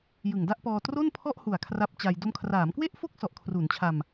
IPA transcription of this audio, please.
j ɯ˨˩ ŋ d a˥˩ ʔ p ɔː˧ t r o˥˩ n pʰ ɔ˥˩ ʔ h u˨˩ a̯ kʰ r a˦˥ p̚ t͡ɕ a˧ j d o˧ m kʰ r aː˩˦ m k w e˥˩ ʔ f o˥˩ k̚ s ɔ˨˩ ʔ kʰ r u˩˦ n t͡ɕʰ a˧ m

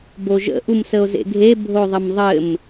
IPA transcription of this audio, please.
b o ʒ ə̰ ʔ u m s ə o̯ z ḛ ɡʱ e bʱ o ðˤ ə m ðˤ ɘ m

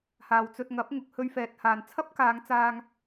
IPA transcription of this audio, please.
h aː˨ w t͡s ɵ˧ t̚ ŋ ɐ˨˥ p̚ ŋ ʊ˨ k̚ h ɵ˧ ɥ f ɛː˨ t̚ h aː˨ n t͡sʰ ɐ˥ p̚ k aː˨˧ ŋ t͡s aː˧ ŋ

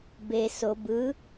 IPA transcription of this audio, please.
b e s o b ɯ

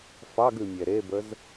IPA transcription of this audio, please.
f ɑ ɡ ʉ mʲ ɛ ɾ e b ə z

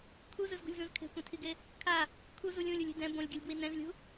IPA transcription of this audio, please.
kʰ u z ɯ z ɡ ṳ lʲ z ũ z kʰ e̤ kʷ ɛ̃ tʰ i ɡ e | kʰ a | kʰ u z u lʲ ũ lʲ u lʲ i̤ d ɛ̃ b õ lʲ ɡʲ ʌ lʲ b w i n ɛ̃ z lʲ ṳ

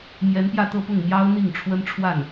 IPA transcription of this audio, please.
m j ɛ˧˥ n p j ä˥˧ t̪ ɤ˥˧ p ʊ˥˩ ŋ m j ɑ˥ ʊ̯ n̪ i˥˩ ŋ ʈ͡ʂʰ w ə˥ n ʈ͡ʂʰ w a˥˩ n

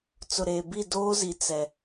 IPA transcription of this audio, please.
t͡s ʊ˨ ɾ eː˨ b i˦˨ d oː˦ z i˨ t͡s ɛ˨

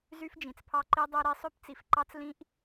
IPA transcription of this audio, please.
z y˦ f d͡ʒ ĩ˨ t͡s pʰ ɑ˦ ǃ i˦ dˤ e˦ ɾ i˦ sˤ ø˦ p t͡s i˨ f ǃ ɑ˦ t͡s l ĩ˦ ʔ

